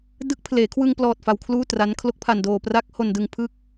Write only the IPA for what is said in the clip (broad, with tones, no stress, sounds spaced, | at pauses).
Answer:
d ɯ˦˥ k̚ pʰ l eː˩˦ kʰ w ɯ˧ ŋ p l ɔː˨˩ t̚ f a˧ w kʰ l uː˥˩ t r a˦˥ n kʰ l o˦˥ k̚ pʰ a˧ n d oː˧ p r a˦˥ k̚ h o˧ n d ɯ˧ ŋ pʰ ɯ˥˩ k̚